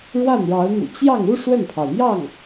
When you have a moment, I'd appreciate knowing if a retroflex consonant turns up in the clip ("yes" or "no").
yes